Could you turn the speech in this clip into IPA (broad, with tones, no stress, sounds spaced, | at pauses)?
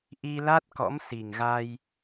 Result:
ʔ i˧ l a˦˥ t̚ k ɔ̰˧˥ m s i˨˩ ŋ ɣ a˧ j